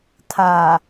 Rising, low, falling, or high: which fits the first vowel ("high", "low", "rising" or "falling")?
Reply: low